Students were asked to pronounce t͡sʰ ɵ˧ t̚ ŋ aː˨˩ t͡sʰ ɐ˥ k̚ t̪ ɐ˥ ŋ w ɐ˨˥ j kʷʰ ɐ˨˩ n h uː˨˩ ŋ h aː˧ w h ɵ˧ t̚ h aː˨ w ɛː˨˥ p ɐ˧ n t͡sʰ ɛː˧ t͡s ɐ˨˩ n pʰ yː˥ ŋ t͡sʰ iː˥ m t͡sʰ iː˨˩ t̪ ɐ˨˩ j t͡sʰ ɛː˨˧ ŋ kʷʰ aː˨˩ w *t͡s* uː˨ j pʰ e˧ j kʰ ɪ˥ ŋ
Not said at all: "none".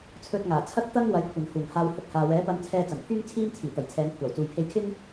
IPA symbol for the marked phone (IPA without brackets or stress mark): t͡s